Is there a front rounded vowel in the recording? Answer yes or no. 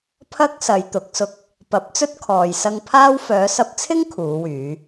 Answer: yes